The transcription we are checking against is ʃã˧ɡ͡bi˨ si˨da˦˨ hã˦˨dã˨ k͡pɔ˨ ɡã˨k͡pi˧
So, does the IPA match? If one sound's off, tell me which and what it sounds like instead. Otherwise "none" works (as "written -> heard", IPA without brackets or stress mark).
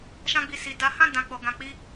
a˦˨ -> a˨˦